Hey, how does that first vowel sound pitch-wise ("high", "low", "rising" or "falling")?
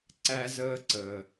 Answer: high